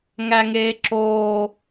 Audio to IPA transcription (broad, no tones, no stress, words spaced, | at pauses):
ŋæŋeːǁoː